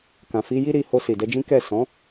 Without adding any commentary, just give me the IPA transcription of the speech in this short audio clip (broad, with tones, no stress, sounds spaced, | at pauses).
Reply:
k ã˨ f i˧ j i˦ ɾ i˧ h o˧ s i˨ d ɛ˧ d͡ʒ ĩ˦ k ɛ˦˨ s ɔ̃˨˦